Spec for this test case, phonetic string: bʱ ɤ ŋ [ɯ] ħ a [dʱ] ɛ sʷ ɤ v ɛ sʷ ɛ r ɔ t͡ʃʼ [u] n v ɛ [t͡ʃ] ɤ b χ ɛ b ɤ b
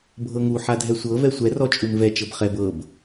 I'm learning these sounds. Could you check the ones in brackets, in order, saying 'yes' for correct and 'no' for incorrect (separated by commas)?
no, yes, yes, yes